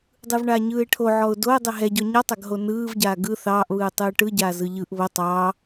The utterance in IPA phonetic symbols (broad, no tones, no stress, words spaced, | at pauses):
dˤɯvɳaːɲɯːɪ̯ʈʰo ʕɔʊ̯doə̯ dˤɛɦɛɟɔ ɲɔtˤaɡɦo nɯːvɟaː ɡɯ θɑːʔβɯː tˤɯːʈɯɟaː zɯʎɯʔ βo tˤɑː